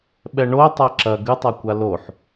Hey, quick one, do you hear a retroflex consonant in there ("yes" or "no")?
yes